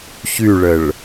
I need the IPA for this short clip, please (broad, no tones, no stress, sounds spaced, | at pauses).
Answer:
ç y ɭ ə ɭ